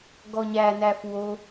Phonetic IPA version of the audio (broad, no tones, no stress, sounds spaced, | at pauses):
ɡ ɔ ɲ æ n æ f w o